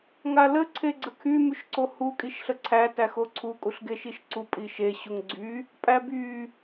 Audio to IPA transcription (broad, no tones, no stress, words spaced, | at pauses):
ŋalə ǀʰeɡ͡ǀəkʰy myʃǀohu kʼiʃɬəǀʰæ tæxoǀʰu kʼuɬɡeʃiʃǀu pʼiʃe ɕuŋɡ͡ǀy | pʼæby